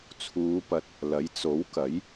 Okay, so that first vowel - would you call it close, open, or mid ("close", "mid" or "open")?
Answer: close